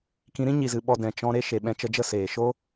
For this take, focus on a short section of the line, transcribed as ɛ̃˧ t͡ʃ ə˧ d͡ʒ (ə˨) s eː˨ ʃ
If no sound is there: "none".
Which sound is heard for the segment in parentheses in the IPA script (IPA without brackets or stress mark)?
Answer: ə˦˨